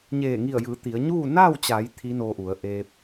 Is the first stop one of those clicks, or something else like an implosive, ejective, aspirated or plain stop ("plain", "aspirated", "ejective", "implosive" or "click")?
plain